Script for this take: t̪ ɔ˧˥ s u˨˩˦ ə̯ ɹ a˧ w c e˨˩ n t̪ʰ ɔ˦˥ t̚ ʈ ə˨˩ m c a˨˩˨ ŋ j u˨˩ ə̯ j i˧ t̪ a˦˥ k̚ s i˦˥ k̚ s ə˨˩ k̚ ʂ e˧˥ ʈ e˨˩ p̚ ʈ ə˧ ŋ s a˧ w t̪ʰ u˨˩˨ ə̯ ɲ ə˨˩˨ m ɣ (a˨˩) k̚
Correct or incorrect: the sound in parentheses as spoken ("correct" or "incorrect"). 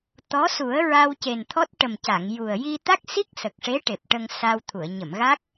incorrect